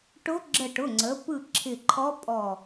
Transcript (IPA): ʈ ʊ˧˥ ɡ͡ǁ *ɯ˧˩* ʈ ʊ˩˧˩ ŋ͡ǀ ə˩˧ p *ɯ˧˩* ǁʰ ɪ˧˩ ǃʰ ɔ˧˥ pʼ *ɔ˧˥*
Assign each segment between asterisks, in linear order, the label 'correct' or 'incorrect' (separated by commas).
incorrect, correct, incorrect